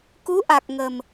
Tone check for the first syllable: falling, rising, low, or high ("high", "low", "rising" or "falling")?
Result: rising